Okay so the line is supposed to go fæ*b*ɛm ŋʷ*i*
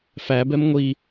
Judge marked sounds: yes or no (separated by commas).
yes, yes